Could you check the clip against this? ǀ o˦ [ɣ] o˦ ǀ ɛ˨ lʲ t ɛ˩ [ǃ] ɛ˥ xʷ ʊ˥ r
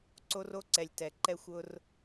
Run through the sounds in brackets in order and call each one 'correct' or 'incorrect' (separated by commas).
incorrect, correct